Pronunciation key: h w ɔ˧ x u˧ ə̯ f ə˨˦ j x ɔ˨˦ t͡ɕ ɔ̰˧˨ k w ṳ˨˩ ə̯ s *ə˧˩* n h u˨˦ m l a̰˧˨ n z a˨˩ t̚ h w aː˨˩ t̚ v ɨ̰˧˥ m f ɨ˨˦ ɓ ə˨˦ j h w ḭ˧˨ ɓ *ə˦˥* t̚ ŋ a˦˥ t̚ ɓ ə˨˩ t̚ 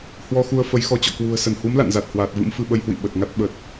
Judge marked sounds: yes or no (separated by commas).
yes, no